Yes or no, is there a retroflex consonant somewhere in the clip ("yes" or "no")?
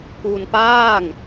no